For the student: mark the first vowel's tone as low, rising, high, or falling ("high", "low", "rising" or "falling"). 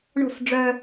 falling